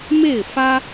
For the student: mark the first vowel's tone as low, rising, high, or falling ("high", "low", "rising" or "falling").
falling